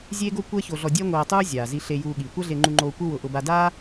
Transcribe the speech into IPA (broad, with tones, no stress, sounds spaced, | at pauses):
zʲ eː˥ ɡ o˥ kʷ ɛ˥ ç o˧ ɮ ɔ˧ dʲ ɛ˥ ŋʷ eː˧ tˤ uː˥ zʲ aː˩ z i˧ ɬ e˧ j uː˧ ɠ iː˩ kʷ a˥ ɮ e˧ ŋ͡ǃ u˧ ŋ͡ǃ oː˧ kʷ ɪ˥ w ʊ˧ ʔ ʊ˧ b a˧ d aː˥